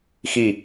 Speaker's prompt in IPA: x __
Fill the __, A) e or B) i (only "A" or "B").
B